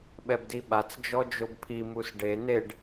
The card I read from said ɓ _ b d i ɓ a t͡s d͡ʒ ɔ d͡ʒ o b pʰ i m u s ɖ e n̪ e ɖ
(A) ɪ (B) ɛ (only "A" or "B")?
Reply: B